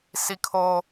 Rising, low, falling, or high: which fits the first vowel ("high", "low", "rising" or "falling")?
high